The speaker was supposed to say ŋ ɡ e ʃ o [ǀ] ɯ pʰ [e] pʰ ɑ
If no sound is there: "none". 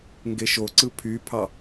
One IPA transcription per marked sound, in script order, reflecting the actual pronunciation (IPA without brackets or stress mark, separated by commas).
ǀ, y